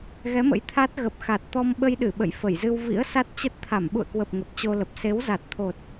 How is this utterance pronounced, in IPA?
ɣ ɛ˨˦ m ə̰˧˥ j t̪ʰ a˦˥ t̚ ɣ ə˨˩ p̚ x a˨˩ t̚ t̪ ɔ˧ m ɓ ə˧ j ɗ ɨ˧˩ ɓ ə̰˧˨ j f ə˧˩ j z ɨ˧ w v ḭ˧˥ ə̯ s a˦˥ t̚ t͡ɕ ə˦˥ t̚ t̪ʰ a˧˩ m ɓ ṵ˧˨ ə̯ k w ə˨˩ p̚ ŋ ə˨˩ p̚ t͡ɕ o˧ l ə˨˩ p̚ s e˨˦ w z a˨˩ t̚ t̪ʰ o˨˩ t̚

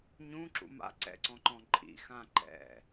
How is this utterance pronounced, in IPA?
ɲ ũ ǁ ṵ m a̰ ǀ ɛ̰ ǀ ɔ̃ ǃ ɔ̃ ǃʼ ḭ x ã ǃ ɛ̰

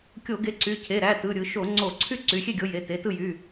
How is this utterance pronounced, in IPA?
kʲ o˧˩˧ ɡ e˨˦ ǀ y˩˧˩ cʰ e˩˧˩ ɾ æ˩˧˩ t ɯ˩˧˩ ɾʲ ɯ˧˩˧ ʃ o˧˩˧ ŋ͡ǀ o˧˩˧ ǀʰ y˥˩ ǀ y˩˧˩ xʲ e˥˩ ɡʲ o˨˦ j e˩˧˩ t e˩˧˩ t ɯ˥˩ j y˩˧˩

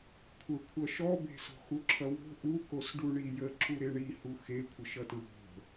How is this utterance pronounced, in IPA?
kʷʰ ə kʷʰ ʌ ʃ ɔ b e̤ s o̤ x u ǁʰ ʌ w o̤ ʔ u k o s ɖ u ɳ i j ə ǁ u ɾ e ɳ i h u x e kʷʰ ə ʃ ʌ t ɹ o̤

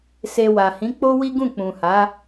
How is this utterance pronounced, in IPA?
s e˧ w a˨ h ĩ˨˦ k͡p o˦ w i˦ ɡ ũ˦˨ k͡p ũ˨ h a˨˦

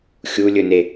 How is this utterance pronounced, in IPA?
xʲ u lʲ ɵ n e

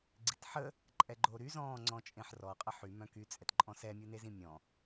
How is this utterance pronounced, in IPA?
ɡ͡ǀ i t ħ ə | ǃʼ ɛ ɡ͡ǃ o ɾ y z ɔ̃ː ŋ͡ǀ ɔ̃ t͡ʃʼ ẽ ħ r ɔ qʼ ə ħ y m œ̃ k y t͡sʼ ɛ t ǃʼ ɔ̃ s ɛ mʲ u n e z ĩ mʲ ɔ̃

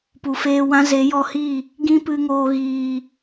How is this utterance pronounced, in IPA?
p u˨ f eː˧ w ã˦ z e˨˦ j ɔ˧ h i˦˨ | ɡ ĩ˦ p ɨ˧ ŋ oː˧ ɣ iː˨

